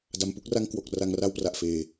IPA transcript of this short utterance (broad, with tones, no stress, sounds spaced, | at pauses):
d a˩˦ m p u˦˥ k̚ r a˥˩ ŋ k w o˨˩ k̚ r a˧ ŋ r a˥˩ w p r a˨˩ ʔ f eː˨˩